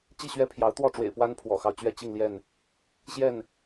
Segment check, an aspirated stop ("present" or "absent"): present